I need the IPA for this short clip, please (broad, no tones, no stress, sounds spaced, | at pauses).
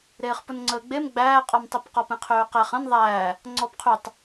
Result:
ɾ eː χ p ʊ n ŋ͡ǀ əː ɡ͡b e m ɡ͡b æː qʼ ɔ m tˤ e p q ɔ p ẽ qʰ øː q æ χ ə̃ n ðˤ æː | ŋ͡ǀ ɔ b qʰ y tˤ